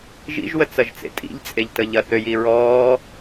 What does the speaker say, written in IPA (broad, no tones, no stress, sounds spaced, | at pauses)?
ʒ ḭ ʒ w ə t͡s ɐ ʒ t͡s ḛ tʼ ḭ ʎ t͡sʼ e ʎ t ə ʎ ɐ θ ø j i ɹ ɔː